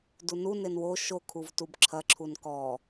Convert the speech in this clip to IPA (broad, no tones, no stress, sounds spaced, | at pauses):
d u n u n e n w o ʃ o kʰ u v t u b ǁʰ ɐ ǁʰ u n k ɔ